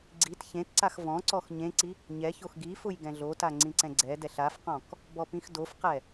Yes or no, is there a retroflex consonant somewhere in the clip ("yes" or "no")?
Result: no